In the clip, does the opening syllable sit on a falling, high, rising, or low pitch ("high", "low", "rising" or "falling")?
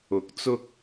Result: rising